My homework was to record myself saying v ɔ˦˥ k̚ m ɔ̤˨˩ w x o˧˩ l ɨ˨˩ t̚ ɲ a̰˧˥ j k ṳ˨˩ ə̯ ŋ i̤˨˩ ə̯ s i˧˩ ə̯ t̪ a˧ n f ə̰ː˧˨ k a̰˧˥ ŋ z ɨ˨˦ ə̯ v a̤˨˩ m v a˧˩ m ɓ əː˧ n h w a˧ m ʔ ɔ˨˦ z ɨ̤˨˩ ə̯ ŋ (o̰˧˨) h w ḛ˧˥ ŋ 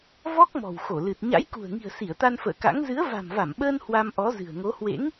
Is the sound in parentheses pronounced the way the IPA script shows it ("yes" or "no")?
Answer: no